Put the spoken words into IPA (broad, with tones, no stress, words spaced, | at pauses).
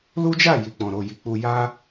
lu˦d͡ʒa˦˨ ji˨k͡pɔ̃˨ɾo˨ ji˨k͡pu˧ja˦